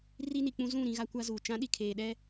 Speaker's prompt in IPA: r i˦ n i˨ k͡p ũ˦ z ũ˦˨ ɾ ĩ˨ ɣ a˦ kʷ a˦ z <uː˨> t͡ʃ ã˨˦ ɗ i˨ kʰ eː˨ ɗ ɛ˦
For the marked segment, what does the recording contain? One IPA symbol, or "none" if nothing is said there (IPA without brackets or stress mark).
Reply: uː˨